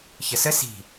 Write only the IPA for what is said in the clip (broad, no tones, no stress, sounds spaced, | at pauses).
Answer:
ç ə s ə s i̤